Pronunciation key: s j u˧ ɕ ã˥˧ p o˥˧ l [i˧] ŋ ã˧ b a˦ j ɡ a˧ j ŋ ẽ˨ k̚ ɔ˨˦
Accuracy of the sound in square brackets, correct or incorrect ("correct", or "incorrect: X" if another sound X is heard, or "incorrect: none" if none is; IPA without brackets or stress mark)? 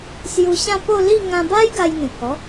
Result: incorrect: i˥˧